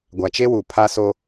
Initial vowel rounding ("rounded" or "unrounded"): unrounded